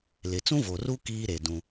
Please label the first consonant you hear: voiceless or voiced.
voiced